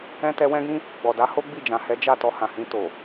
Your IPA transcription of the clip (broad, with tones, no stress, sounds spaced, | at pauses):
ɛ̃˦ t ɛ˧ w ɛ̃˦ ɡ ĩ˦ | ɡ͡b ɔ˨ d a˨˦ h o˦ ɡ͡b i˦˨ d͡ʒ ã˨ h ɛ˨˦ d͡ʒ a˦˨ t ɔ˧ h ã˨ h ĩ˧ t o˨